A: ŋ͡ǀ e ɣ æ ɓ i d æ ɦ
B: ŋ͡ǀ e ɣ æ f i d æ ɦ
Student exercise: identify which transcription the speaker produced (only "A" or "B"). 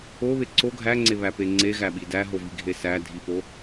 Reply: A